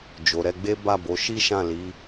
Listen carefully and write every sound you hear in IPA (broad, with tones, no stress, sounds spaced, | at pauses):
d͡ʒ o˨ ɾ ɛ˧ ɡ͡b e˦ b a˦˨ b o˨˦ ʃ i˦ ʃ ã˦˨ l i˨˦